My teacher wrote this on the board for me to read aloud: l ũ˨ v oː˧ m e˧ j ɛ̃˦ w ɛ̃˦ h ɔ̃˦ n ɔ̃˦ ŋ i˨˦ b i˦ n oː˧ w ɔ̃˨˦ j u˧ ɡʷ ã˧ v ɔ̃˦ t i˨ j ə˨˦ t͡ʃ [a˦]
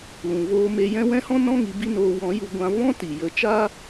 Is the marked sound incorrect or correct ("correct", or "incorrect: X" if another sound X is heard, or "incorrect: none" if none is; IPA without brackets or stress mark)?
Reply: incorrect: aː˦